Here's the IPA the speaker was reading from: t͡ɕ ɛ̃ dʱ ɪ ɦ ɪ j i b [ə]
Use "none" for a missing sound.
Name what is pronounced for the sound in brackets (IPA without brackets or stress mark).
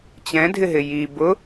ʊ